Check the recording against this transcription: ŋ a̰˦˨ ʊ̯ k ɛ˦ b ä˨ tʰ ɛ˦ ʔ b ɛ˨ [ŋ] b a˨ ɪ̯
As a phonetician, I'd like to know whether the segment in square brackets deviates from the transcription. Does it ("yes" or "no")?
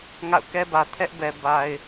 yes